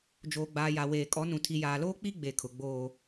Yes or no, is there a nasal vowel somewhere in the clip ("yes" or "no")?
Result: yes